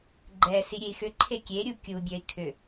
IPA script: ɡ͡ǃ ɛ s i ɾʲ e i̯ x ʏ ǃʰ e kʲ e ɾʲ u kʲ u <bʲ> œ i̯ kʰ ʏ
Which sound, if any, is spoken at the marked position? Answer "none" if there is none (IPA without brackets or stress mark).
bʲ